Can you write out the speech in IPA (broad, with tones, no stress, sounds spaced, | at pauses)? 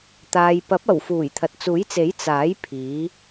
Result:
t̪ aː˨ j p ɐ˨˥ p̚ ɐ˨˩ w f uː˨˩ j t̪ʰ ɐ˨ t̚ t͡s uː˨˥ j t͡s e˨˥ j t͡s aː˨˥ j pʰ iː˨˧